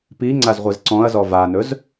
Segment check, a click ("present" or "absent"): present